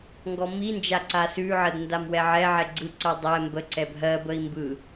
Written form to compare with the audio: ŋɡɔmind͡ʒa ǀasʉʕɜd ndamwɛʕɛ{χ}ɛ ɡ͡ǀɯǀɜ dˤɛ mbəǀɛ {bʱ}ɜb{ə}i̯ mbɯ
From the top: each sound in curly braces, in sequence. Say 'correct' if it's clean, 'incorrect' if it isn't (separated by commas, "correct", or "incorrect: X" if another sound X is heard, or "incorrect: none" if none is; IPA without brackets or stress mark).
incorrect: ʕ, correct, correct